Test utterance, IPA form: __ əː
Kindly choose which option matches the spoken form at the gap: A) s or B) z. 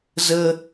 B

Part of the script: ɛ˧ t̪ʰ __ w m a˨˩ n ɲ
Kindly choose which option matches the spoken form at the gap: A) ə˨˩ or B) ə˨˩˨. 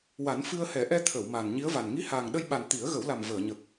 B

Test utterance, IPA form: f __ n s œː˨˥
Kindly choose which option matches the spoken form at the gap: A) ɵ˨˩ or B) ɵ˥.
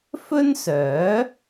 B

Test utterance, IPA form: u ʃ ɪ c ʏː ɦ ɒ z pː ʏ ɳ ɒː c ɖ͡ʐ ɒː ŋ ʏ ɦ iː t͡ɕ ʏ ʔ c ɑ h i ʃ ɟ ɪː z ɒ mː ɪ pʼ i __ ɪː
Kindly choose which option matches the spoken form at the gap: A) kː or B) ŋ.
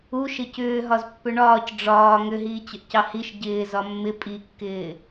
A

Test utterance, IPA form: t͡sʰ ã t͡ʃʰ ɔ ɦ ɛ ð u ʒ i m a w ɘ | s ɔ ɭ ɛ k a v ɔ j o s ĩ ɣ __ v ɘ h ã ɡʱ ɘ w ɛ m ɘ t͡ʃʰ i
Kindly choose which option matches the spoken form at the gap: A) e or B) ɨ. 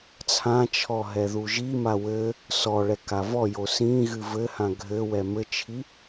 B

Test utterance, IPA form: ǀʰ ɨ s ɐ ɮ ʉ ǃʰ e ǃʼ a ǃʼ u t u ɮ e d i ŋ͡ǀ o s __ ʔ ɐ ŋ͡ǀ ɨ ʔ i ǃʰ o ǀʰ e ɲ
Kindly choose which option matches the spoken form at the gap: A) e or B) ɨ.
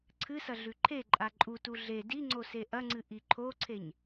A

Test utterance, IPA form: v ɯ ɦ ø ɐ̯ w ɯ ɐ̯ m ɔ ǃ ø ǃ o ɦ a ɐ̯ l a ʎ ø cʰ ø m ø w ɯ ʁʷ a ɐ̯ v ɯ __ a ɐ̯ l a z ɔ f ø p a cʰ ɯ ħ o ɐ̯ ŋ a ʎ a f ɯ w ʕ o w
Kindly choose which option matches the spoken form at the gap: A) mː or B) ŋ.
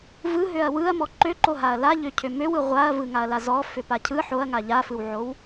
B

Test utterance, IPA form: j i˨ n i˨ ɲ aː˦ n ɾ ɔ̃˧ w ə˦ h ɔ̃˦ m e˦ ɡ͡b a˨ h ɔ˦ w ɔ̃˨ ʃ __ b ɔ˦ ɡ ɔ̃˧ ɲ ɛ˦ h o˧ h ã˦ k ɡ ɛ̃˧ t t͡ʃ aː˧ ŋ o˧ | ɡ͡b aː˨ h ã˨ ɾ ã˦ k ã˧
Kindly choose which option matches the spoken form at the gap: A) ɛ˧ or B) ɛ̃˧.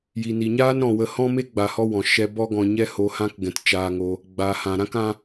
A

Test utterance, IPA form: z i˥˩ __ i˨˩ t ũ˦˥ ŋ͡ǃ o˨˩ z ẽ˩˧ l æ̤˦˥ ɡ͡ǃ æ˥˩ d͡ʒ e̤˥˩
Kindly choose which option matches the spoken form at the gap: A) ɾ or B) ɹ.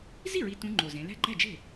B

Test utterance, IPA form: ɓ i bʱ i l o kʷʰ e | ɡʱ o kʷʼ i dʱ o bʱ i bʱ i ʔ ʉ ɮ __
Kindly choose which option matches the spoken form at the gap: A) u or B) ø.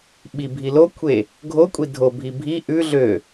B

